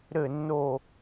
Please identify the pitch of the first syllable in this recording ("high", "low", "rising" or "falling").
falling